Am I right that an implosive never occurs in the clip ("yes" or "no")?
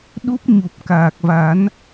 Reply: no